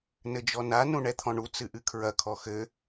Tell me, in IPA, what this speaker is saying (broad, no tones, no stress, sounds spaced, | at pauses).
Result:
n ɘ d͡ʒ ɔ n a n ũ ɳ ɛ t̪ʰ ɔ̃ ɳ u t͡s ɨ ʔ ɨ kʰ ɹ ɐ kʰ ɔ x ɘ